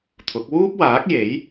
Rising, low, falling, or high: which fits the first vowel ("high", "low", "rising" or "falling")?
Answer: rising